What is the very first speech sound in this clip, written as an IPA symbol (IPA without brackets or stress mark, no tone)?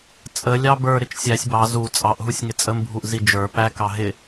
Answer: t͡sʼ